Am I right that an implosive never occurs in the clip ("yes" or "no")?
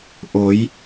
yes